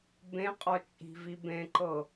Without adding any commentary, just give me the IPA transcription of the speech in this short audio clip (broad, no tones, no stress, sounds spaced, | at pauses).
b ẽ qʼ ɔ t͡ʃʼ i̤ v i b ẽ ǃ ɤ